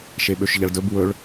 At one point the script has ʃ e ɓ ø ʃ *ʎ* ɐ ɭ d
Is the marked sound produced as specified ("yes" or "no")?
yes